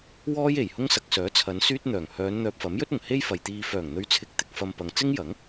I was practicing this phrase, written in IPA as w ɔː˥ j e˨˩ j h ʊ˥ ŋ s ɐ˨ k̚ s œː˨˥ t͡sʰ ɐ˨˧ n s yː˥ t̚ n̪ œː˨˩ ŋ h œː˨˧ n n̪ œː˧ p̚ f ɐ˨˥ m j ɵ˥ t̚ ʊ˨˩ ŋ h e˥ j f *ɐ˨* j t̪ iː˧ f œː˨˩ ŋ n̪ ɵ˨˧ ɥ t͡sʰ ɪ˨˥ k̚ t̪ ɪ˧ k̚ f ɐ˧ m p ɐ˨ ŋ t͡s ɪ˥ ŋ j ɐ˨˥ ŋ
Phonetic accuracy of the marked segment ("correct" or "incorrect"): correct